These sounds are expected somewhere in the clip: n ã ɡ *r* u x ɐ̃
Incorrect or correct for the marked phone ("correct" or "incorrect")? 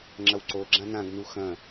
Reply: incorrect